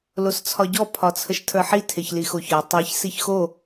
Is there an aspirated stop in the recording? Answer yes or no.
yes